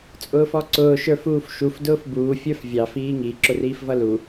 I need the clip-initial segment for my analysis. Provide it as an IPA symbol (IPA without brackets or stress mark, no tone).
t͡sʼ